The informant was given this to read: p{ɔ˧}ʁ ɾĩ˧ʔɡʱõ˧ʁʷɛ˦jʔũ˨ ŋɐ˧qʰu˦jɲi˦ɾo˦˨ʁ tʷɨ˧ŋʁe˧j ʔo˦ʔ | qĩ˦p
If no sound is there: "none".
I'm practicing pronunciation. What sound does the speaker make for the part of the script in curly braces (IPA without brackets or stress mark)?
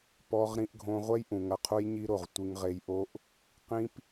ɔ˧